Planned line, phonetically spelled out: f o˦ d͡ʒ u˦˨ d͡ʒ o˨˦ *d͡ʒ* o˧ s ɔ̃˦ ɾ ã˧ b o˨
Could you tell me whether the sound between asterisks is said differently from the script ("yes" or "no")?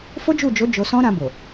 no